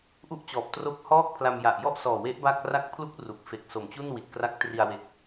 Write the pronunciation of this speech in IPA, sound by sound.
ʔu˥˩ʔt͡ɕɔː˨˩p̚ tro˦˥k̚hɔː˥˩k̚pʰla˧m ja˨˩ʔjɔ˥˩ʔsɔː˨˩we˦˥ʔ ba˥˩k̚ ra˦˥k̚pʰlu˦˥k̚ ru˨˩k̚ fe˨˩k̚so˨˩mt͡ɕu˥˩n wi˨˩t̚kra˦˥k̚tri˧a̯ we˦˥k̚

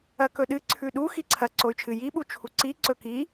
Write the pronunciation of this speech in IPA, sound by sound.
ɐkɵɗɨ ǀʰʉɗu xiǀʰɐ ǀoy̯t͡ʃʰɨ ji ɓut͡ʃʰuǀi ǀɵki

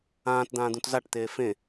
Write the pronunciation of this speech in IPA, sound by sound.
ãːt d̪ãːd̪ũtzaʈt̪eː fẽ

